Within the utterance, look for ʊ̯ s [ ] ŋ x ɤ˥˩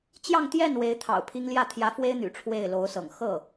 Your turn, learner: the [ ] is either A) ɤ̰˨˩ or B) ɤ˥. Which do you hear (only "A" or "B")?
A